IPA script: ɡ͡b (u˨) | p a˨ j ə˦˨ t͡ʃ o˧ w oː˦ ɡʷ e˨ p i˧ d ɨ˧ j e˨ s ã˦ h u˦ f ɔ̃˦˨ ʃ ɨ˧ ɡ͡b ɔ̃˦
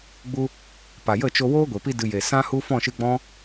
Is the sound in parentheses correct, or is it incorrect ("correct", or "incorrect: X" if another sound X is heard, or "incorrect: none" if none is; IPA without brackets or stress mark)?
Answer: incorrect: u˦